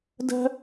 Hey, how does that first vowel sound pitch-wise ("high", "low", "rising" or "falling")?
high